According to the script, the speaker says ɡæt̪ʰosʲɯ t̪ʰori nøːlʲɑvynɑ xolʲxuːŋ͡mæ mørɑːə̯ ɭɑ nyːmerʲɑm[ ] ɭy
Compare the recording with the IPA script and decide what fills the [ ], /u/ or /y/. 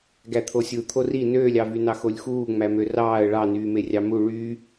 u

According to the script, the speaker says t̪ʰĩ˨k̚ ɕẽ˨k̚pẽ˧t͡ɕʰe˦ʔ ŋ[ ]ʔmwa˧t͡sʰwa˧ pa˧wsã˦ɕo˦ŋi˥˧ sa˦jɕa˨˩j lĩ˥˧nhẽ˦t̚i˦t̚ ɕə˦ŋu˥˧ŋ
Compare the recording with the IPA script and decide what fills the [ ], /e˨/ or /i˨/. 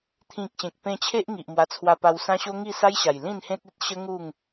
i˨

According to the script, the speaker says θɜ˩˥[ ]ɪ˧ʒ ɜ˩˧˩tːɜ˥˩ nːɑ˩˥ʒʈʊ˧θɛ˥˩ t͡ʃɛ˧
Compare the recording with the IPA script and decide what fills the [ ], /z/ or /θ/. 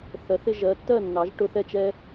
θ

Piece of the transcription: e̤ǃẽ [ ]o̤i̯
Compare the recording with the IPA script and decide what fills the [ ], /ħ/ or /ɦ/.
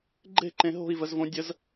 ɦ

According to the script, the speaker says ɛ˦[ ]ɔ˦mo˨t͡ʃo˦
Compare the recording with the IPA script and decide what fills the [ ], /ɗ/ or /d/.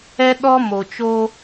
ɗ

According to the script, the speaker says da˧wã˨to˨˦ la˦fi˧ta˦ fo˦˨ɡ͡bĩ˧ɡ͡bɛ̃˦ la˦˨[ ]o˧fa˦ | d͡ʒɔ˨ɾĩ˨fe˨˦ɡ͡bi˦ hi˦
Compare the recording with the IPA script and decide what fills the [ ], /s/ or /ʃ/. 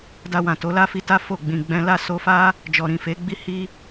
s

